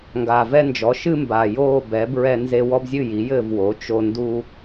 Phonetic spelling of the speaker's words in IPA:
ŋɡaː˨˩vɛ˦nd͡ʒɔ˩˥ ʃɨ˦mba˨˩ joː˥˨ bɛ˩˥ bɹɛ˦nze˦ wɔ˦bzʲɨ˥˨ ji˩˥jɘː˥˨vwo˩˥ t͡ʃo˦ ndu˦

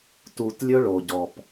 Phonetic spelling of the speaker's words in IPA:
tu˨tlʲɵ˦ ɭo˨ɟɔ˨p

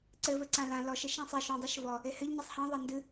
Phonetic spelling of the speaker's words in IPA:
ǀɘvɘǀã lã lɔʃɘ ʃãsˤe ʃũdˤiʃ vɔ | ehɘʎ ɲisˤhã ðˤandɨ

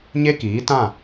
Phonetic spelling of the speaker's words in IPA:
ɲe˦kiː˨˦tã˦˨

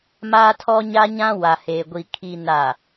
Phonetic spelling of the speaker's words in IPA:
maː˦tʰɔ˦ɲa˦ɲã˦ wa˨heː˨ɡʷi˨ kʰi˨na˨

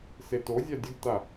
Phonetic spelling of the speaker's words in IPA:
setozʲa dʲəɡta

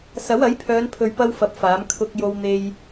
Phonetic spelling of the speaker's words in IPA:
sɐ˨˥wɐ˨˥jpʰœː˨˧n pʰɵ˨ɥpɐ˧w fɐ˧p̚faː˨˥m kʰʊ˧k̚ jo˧wn̪e˧j

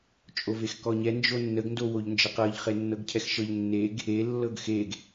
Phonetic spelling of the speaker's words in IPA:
t͡ʃʼovexkɔɲɛ nd͡ʒonːəɡ ndowoʎnd͡ʒəqɤʎ χenːɤɡcʰɛxʃɤʎ nːeɡ | e lːɤɡxeɡ

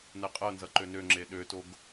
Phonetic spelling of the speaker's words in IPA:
nɛqʼɤnzʌ ǃønøŋ͡ǁe ɗøtoɡ

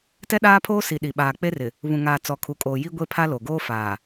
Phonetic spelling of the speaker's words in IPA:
tɛ˦ɗaː˦pʰoː˦si˨ ɗi˨ɓaː˨k͡pe˦rɪ˨ | βũ˨ŋaː˨ t͡sɔ˨kʰu˨kʼoː˨ ji˦ ɡʷe˦pʰa˦ lo˨ɡoː˦faː˨

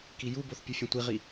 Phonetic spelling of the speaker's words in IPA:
kijuboθ pʲɯfʲẽtʷiʁi

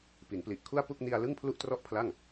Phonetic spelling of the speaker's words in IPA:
pi˩˦npli˨˩ʔkʰu˥˩a̯ pu˥˩k̚ni˧a̯lɯ˥˩ŋ pʰlu˥˩ʔtrɔ˥˩ʔpʰla˥˩ŋ

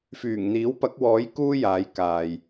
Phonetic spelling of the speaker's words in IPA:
fyː˨˩ŋn̪iː˨˥wpɐ˨˥k̚wɔː˨˥j kuː˥jaː˨˧jkaː˨j

